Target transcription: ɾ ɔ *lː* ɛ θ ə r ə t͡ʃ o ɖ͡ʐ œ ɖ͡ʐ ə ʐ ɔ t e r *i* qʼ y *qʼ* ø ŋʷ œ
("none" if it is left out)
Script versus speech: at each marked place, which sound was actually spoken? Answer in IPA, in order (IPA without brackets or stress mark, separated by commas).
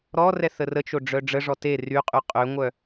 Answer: r, y, qʼ